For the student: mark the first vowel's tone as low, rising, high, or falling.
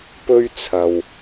high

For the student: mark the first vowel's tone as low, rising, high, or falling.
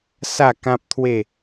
falling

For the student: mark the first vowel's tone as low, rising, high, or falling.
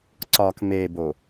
low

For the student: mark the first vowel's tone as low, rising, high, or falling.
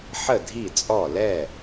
falling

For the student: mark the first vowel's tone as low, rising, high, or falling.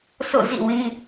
falling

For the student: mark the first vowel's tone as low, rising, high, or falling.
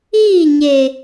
falling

